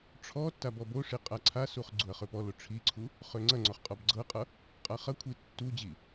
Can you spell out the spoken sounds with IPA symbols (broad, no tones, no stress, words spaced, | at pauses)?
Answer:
ʈ͡ʂʰɔ tːabɔboʂi qʼaǀʰasuχ ɡ͡ǀuɐ̯χøpɔlo ʈ͡ʂʰiǀʰu | χøŋ͡ǀɐŋ͡ǀɔχ qʼɔbɡ͡ǀɤqʼʌ | qʼaχɐkʷʰi tːu d͡ʑi